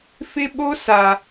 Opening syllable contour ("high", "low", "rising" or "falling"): high